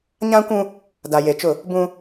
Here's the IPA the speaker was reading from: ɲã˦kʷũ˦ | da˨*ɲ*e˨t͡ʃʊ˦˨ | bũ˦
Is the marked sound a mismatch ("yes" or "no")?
yes